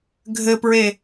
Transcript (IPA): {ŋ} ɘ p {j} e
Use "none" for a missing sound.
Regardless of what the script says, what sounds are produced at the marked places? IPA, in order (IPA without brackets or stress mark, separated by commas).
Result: ɡʱ, ɹ